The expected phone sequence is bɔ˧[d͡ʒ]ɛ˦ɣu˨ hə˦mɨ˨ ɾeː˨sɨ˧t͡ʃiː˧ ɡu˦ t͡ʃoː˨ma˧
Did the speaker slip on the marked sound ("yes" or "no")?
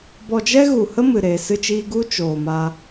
no